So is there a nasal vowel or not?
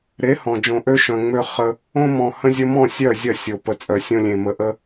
yes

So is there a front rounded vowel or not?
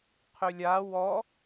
yes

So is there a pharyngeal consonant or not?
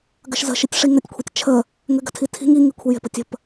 no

